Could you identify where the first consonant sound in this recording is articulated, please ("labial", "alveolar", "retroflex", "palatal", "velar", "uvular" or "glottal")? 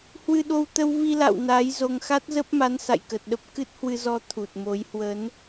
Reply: glottal